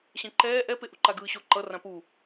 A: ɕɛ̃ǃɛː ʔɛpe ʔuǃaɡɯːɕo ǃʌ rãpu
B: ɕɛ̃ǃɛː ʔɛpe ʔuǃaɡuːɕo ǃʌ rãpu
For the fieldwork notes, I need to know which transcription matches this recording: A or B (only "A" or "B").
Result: A